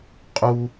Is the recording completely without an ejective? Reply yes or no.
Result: no